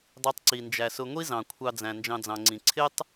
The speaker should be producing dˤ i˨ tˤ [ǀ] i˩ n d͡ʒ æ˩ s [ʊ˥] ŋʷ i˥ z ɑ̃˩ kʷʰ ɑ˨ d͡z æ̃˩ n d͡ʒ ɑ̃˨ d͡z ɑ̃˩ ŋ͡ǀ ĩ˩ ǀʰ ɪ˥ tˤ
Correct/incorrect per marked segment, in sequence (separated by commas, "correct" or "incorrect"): correct, incorrect